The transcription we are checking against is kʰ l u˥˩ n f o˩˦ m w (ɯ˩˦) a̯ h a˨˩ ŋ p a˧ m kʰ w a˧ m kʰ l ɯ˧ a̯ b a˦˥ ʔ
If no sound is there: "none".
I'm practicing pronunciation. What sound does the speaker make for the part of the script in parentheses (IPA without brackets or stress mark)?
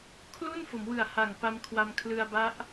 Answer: ɯ˨˩